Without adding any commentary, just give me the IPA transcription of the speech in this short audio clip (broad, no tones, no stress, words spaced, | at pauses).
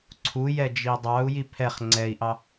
ǀʰu jɛd͡ʒidˤɑu̯ jipʰɛχ ŋ͡ǀɛi̯ʔɑ